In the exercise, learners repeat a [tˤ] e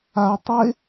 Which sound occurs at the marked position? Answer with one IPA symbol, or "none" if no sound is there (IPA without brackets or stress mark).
tˤ